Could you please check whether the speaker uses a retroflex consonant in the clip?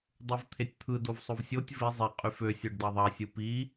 yes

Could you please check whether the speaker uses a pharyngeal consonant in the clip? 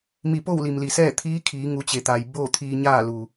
no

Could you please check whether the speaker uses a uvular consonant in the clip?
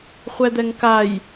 yes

